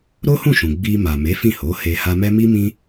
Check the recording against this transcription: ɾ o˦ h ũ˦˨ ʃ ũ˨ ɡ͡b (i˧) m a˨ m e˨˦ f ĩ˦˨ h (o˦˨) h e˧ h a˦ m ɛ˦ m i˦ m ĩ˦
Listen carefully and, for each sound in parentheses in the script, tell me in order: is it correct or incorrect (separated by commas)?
correct, incorrect